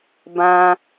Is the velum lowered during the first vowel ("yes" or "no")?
yes